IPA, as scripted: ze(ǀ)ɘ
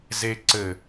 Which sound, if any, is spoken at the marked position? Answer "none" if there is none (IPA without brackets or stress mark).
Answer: ǀ